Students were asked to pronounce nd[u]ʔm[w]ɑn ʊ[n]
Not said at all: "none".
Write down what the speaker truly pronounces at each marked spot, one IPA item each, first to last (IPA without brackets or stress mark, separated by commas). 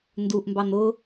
u, b, none